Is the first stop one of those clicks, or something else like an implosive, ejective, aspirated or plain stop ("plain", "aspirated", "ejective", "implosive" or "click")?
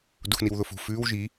plain